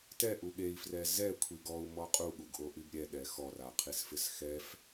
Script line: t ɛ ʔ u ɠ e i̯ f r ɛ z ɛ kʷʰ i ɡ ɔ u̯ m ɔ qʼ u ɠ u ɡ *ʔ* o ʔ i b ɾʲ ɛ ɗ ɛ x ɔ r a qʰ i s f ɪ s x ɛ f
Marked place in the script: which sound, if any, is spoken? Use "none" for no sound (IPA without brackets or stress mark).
ʔ